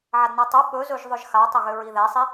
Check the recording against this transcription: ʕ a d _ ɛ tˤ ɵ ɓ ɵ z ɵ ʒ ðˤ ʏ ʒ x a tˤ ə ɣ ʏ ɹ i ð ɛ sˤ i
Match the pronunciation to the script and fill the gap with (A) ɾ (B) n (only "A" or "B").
B